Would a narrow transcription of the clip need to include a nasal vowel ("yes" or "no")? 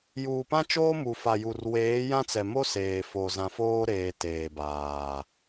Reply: yes